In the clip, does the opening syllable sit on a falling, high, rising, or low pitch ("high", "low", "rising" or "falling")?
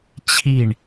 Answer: falling